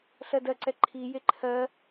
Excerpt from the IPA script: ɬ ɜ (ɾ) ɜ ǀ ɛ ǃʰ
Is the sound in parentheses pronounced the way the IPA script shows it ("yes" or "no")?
no